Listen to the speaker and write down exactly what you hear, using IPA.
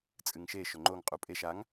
t͡sʼ ɨ ŋ ʃ e ʃ ɵ ŋ͡ǃ o ŋ qʼ u pʼ e ʃ a ŋ

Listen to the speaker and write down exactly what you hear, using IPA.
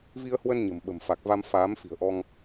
v i˧ ə̯ h w ə˧ n ɲ ə̤˨˩ m ɓ ə̤˨˩ m f a˨˩ k̚ v a˧ m f aː˨˦ m f i̤˨˩ ə̯ ʔ ɔ˧ ŋ

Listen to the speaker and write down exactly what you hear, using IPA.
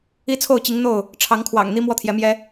i˦ t͡sʰ o˥˨ ʊ̯ t͡ɕ i˨˦ ŋ n̪ o˥˨ ʊ̯ | ʈ͡ʂʰ ɑ˨˦ ŋ kʰ w ɑ̰˨˩ ŋ n̪ i˦ m w ɔ˦ t̪ʰ j ɛ˨˦ m j ɛ˦

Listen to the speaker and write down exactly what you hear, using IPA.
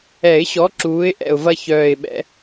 ɛ˨˩˦ ɪ̯ ɕ ɔ˨˥ ǁ uː˨˥ ɪ̯ ʔ ɛ̰˨˩ ʊ̯ v ɐ˦ ç œː˨˩ ɪ̯ ɓ ɛ̰˨˩˦

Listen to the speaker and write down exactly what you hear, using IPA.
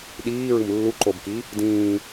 ɗ iː ɹ ɯ m lː u ǃ o b k i | d ĩː

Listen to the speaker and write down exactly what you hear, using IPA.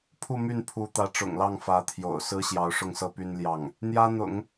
pʰ u˥˧ m y˥˩ n pʰ u˧˥ t̪ ä˧˥ ʈ͡ʂ ʊ̰˨˩ ŋ l ɑ˥˩ ŋ f ä˧˥ t̪ʰ j o̰˨˩ ʊ̯ s ɹ̩˥ ɕ j ɑ˧˥ ʊ̯ ʂ ʊ˥˩ ŋ s ɤ˥ p y˥ n l j ɑ˥˩ ŋ | n̪ j ä˥ n̪ ʊ̰˨˩˦ ŋ

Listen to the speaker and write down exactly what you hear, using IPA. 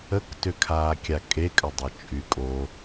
ə k t ʏ kʰ aː kʲ a kʼ e kʼ ə dˤ ʏ t͡ʃʼ y kʼ o

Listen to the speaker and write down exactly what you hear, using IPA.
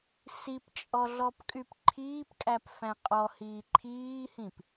s i p t͡ʃʼ ɔ ɮ ɔ p kʼ y p ǃʰ iː p kʼ æ p f æ̃ qʼ ɔ h iː ǃʰ iː h ĩ p

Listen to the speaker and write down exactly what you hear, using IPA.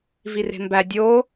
v i r e̤ m b æ dʲ o

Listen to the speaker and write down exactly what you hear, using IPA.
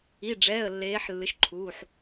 i˩˧˩ ɖ͡ʐ ɛː˩˧˩ ə̯ lː eː˨˦ ħ lː ɨ˩˧˩ ʃ ǃʰ uː˩˧˩ ħ

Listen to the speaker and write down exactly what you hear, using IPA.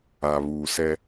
a˨ β uː˨ s ɛ˦

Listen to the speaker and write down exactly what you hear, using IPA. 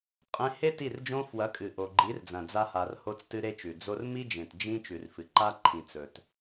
qʼ ẽ˧ h e˦ t i˦˨ r d͡ʒ õ˦ f w ɐ˨˦ kʼ ɨ˨ ʔ o˨ ɡ͡ǃ i˨˦ r d͡z ɐ̃˨ d͡z a˧ h a˨ r h o˦ t͡s t ɨ˦ ɾ e˦ t͡ʃ ʉ˨ d͡z o˧ r m i˦ d͡ʒ ẽ˨ t d͡ʒ ĩ˦ t͡ʃ ʉ˨ r f ɨ˨ ǃ a˦ ǃʰ ĩ˨ t͡s ɵ˨ t

